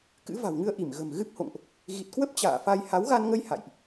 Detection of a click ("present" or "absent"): absent